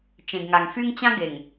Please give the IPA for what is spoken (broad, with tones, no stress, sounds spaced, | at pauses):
t͡ʃ ẽ˨ ɡ ŋ a˨ ŋ f y˦ ŋ t͡ɕ ã˦ ɡ e˨ ŋ